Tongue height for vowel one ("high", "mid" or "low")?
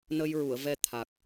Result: mid